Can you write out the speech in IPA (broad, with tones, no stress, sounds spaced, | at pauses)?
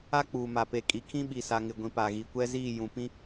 a˦ k͡p uː˨ m a˨ p e˨ kʼ i˨ kʰ ĩ˦ ɓ i˨ s a˨ ŋ ɪ˨ ɡʷ ĩ˨ p a˨ ɣ i˨ kʷ ɛ˦ z iː˦˨ j ũ˨ p ĩ˦